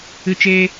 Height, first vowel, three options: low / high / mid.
high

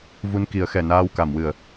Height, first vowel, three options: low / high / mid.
high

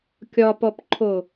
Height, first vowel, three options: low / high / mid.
low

